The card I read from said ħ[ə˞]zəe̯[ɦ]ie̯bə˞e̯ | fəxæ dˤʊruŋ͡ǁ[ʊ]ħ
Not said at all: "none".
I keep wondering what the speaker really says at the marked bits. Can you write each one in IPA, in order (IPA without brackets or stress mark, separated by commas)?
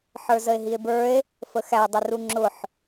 ə˞, ɦ, ʊ